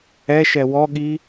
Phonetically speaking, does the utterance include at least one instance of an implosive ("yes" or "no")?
yes